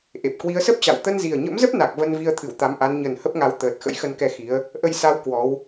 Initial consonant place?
glottal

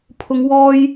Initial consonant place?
labial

